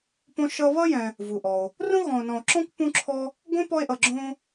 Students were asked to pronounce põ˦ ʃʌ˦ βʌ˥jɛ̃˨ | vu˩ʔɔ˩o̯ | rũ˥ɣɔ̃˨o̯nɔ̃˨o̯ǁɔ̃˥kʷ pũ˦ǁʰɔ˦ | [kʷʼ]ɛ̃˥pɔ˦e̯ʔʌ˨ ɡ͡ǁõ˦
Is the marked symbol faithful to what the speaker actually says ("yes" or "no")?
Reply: no